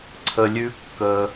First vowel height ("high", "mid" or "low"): mid